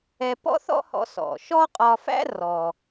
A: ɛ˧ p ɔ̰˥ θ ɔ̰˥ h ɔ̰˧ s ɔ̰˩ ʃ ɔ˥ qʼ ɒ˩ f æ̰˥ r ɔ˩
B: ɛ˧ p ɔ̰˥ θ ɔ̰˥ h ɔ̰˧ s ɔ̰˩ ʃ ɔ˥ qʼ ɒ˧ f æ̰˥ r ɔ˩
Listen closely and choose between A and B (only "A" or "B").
B